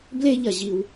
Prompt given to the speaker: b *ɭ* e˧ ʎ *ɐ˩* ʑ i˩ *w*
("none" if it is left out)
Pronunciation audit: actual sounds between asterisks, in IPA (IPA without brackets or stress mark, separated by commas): l, ɐ˩, w